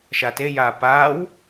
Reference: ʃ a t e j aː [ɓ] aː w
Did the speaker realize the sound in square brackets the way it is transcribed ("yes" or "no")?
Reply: no